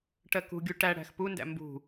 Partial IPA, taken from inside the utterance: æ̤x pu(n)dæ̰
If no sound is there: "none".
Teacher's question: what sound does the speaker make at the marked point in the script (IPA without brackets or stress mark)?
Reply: n